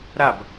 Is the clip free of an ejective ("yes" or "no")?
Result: yes